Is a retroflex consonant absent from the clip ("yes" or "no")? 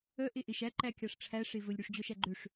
no